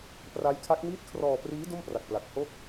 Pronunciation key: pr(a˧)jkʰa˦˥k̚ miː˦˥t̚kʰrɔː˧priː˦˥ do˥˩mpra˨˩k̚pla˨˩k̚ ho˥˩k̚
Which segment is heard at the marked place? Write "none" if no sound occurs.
a˦˥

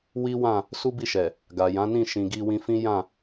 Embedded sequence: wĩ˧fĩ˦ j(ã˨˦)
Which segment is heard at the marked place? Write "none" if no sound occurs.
ã˦˨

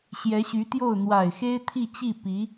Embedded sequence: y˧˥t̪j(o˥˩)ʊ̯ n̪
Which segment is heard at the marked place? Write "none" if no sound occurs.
o˥˩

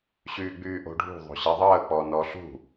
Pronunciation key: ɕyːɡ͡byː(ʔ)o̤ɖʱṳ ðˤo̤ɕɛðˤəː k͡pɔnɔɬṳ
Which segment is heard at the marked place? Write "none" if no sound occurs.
ʔ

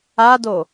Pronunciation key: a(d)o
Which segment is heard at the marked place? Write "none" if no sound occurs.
d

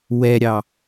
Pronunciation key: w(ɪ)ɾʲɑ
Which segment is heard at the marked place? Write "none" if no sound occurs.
ɛ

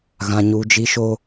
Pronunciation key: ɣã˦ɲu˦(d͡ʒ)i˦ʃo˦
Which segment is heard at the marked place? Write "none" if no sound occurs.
d͡ʒ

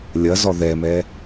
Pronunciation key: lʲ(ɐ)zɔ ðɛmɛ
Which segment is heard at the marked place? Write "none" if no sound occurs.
ɐ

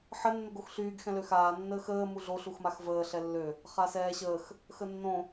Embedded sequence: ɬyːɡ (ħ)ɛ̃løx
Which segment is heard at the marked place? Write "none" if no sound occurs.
x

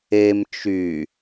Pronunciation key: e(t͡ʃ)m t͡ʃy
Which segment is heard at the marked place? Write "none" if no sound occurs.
none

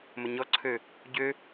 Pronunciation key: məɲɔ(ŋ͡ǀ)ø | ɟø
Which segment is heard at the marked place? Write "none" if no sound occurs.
ǀʰ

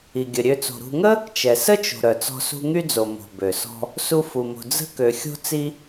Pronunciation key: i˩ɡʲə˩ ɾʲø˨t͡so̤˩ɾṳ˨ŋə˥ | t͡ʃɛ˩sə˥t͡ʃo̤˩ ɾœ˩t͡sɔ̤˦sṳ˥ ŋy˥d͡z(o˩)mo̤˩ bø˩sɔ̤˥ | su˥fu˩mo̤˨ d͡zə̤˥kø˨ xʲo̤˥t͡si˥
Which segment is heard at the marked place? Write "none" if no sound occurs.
o˩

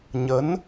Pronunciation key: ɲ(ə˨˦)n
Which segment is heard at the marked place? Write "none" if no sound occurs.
ə˨˦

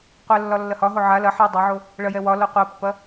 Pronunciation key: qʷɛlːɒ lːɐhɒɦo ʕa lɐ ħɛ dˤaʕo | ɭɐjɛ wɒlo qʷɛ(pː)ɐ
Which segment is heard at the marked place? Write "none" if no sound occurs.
pː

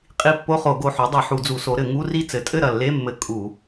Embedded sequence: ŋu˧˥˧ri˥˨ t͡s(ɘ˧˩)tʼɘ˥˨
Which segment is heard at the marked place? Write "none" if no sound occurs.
ɘ˩˥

